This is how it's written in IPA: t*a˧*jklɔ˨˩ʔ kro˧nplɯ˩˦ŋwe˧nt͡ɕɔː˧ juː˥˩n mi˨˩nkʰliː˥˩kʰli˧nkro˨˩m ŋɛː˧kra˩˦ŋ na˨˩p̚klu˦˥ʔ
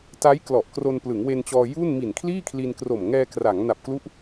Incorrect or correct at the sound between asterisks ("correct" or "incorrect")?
incorrect